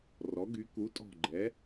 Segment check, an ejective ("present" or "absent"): present